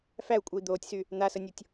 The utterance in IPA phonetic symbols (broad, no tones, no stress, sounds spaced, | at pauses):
f æ u̯ kʷʼ ə i̯ d̪ oː tʲ s y | n̪ a s ə nʲ o tʲ